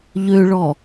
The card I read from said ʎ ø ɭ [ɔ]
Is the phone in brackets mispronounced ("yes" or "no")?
no